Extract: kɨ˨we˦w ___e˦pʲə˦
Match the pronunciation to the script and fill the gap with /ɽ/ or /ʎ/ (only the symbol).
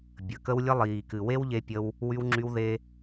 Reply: ʎ